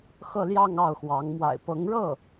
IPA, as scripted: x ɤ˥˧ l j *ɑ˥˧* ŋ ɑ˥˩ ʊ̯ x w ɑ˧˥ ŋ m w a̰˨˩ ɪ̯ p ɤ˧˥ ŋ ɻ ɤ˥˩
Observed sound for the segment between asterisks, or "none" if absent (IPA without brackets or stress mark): ɑ˥˧